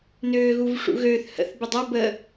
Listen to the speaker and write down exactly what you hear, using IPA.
n øː ɣ u v ʂ ṵ ɣ øː θ h ə̰ θ b ɪ dˤ ɐ b ə

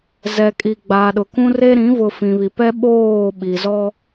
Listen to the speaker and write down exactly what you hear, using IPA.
z ɛ˨ kʼ i˨ ɡ͡b a˨ ɗ ʊ˨ k ũ˦ r e˦ ɾ ĩ˨˦ v ʊ˨ f ĩ˨ β i˨ p ɛ˦ ɓ oː˦˨ ɓ i˨ z ɔ˦

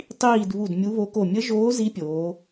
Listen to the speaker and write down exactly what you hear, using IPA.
tˤ iː˦˨ d β u˦˨ d mʲ u˧˥ β o˧˥ k o˦˨ mʲ ə˧˥ ʒ oː˧˥ z i˧˥ pʲ oː˩˧

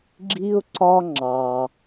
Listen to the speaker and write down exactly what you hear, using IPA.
ɡ͡ǁ i˥ ʊ̯ ǀ ɒ˥ ŋ͡ǁ ɑ˨

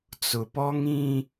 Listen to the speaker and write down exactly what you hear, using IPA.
t͡s ʊ˨ p ɔ˦ ŋ ĩ˦

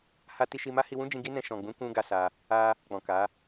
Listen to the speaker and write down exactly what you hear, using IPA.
h a˧ t i˧ ʃ i˧ m a˦ h i˧ w ũ˦ d͡ʒ ĩ˧ ɡ i˦ n ɛ̃˧ ʃ ɔ̃˨ ɡ͡b ũ˨˦ k ũ˧ ɡ a˧ s a˧ | a˧ | k͡p ɔ̃˨ k a˨˦

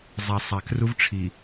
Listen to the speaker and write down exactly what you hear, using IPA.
zˤ æ˨ sˤ æ˨ k r u˦ v ʈ͡ʂʰ i˨

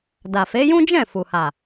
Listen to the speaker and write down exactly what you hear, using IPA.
d a˨ f e˨˦ j ũ˦ d͡ʒ ɛ̃˦˨ f u˨ h a˨

